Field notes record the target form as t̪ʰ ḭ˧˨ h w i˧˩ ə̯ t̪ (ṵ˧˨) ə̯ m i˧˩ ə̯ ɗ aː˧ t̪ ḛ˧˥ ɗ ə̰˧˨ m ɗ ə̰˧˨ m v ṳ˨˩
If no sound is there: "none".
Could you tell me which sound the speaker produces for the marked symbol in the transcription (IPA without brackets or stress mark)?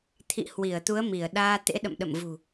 u˨˦